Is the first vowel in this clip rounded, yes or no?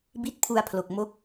no